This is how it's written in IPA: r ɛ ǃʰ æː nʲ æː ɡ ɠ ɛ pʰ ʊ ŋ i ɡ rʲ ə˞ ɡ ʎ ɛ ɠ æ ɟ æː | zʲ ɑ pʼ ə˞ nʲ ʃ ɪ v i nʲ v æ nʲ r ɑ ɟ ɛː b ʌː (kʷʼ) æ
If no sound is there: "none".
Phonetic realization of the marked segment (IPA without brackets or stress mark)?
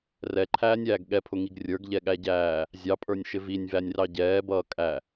kʼ